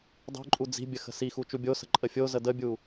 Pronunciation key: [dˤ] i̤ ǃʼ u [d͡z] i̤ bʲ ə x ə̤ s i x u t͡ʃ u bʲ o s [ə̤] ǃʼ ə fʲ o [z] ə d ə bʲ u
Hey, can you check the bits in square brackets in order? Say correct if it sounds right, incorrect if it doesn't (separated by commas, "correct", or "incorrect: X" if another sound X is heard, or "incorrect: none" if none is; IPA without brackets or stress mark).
correct, correct, correct, correct